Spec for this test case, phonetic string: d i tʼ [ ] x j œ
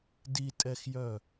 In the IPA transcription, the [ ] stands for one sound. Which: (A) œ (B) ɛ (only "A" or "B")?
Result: B